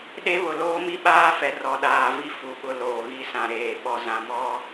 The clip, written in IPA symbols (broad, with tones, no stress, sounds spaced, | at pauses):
ɗ e˦ β ʊ˨ l oː˦ m i˦ ɓ aː˦ f ɛ˨ r ɔ˨ ɗ aː˨ v i˦ f u˨ ɓ ʊ˨ l oː˨ ɣ i˦ s ã˨ ɾ eː˨ ɓ ɔ˨ z ã˨ m ɔ˦